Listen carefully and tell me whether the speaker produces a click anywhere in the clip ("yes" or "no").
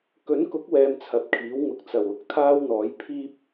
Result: no